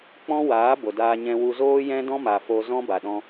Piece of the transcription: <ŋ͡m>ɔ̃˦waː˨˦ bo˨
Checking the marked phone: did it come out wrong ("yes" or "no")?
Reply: yes